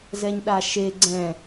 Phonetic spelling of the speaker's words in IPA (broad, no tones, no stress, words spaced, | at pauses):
zɛɲɗaʃe ɡ͡ǀɛ̃